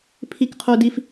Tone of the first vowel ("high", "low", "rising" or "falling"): high